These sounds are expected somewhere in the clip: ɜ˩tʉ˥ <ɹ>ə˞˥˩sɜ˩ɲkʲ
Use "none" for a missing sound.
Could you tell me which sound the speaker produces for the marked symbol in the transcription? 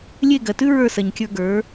ɹ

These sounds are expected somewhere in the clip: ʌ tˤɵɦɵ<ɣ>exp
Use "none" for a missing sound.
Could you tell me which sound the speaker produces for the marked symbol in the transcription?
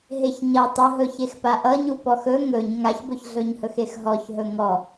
ç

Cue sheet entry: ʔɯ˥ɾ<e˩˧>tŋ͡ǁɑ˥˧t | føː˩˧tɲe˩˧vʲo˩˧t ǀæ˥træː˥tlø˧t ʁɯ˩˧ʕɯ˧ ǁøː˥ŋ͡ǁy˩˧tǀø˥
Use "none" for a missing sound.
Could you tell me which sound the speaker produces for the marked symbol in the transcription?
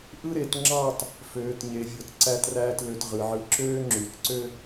e˩˧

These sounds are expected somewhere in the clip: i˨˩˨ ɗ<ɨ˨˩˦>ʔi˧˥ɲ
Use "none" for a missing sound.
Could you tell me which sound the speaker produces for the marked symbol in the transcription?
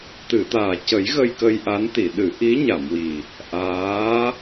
ɨ˨˩˦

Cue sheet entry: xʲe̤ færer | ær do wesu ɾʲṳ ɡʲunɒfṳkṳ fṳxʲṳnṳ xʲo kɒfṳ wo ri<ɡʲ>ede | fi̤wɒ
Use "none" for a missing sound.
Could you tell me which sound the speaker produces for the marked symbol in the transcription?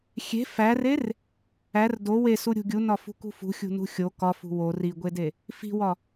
ɡʷ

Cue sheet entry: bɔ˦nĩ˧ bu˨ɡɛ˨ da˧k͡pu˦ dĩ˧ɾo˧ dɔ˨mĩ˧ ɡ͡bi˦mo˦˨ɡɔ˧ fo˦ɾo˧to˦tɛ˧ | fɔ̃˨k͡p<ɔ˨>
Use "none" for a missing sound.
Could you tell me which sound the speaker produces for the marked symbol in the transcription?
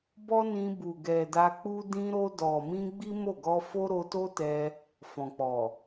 ɔ˨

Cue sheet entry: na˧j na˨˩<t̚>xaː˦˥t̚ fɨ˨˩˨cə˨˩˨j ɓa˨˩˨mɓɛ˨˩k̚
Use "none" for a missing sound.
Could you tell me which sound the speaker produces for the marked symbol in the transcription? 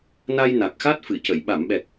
k̚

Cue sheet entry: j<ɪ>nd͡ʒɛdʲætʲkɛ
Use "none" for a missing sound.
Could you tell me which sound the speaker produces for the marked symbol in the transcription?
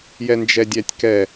ɛ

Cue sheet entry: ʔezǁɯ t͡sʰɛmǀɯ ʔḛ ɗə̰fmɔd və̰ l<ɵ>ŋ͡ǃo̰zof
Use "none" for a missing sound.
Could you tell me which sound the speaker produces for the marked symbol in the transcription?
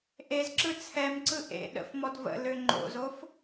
ø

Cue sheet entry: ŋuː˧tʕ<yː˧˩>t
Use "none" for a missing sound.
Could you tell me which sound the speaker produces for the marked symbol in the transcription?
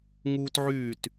yː˧˩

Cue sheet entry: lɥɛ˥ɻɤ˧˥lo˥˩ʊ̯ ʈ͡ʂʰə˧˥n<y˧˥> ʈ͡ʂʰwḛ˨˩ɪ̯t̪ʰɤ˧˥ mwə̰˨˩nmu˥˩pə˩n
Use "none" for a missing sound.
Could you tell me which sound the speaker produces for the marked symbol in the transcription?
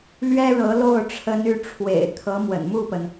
y˧˥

